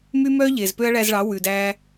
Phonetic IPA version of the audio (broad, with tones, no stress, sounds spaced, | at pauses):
m y˦ m œː˦ ʎ eː˨ z p ø˦ ɐ̯ ɭ æ˧ z ɭ ɑ˨˦ w ʉ˨ d æ˧